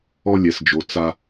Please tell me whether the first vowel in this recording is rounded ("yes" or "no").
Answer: yes